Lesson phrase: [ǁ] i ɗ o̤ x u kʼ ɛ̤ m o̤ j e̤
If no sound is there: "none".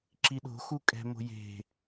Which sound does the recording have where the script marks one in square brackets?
ǁ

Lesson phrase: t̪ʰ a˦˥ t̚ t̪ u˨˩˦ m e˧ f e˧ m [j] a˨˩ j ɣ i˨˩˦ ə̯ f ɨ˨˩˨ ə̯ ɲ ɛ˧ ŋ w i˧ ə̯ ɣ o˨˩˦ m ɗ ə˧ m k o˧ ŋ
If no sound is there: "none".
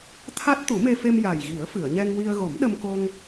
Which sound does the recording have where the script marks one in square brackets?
j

